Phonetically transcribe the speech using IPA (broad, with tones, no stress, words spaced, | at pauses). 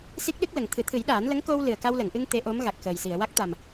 si˦˥k̚ɗɨ˦˥k̚lə˨˩ŋ t̪ʰɨ˨˩˦t̪ʰɨ˨˩˦jɗaː˨˩˦n lə˧˥ŋko˧w lɨ˨˩ə̯ka˧wlə˨˩˨ŋʔɨ˧ŋ t̪e˧˥ʔo˧˥m ɣa˨˩k̚xəː˨˩jsi˨˩˨ə̯ wa˦˥k̚t̪a˨˩m